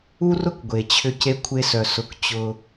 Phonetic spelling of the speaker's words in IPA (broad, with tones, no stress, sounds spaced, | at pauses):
u˦ r ʊ˦ k ɡʷ e˨ t͡ɕʰ ʏ˧ c e˧ kʷʰ e˧ s œ˨ s ʊ˧ k t͡ɕ ʊ˧